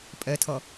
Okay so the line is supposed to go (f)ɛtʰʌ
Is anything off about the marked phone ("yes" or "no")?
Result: yes